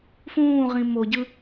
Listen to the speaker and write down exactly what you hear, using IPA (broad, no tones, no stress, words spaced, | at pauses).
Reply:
fũːʁĩ moɟɯ